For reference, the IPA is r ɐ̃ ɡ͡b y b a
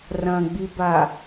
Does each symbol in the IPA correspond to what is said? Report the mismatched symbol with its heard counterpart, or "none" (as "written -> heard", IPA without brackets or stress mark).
y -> i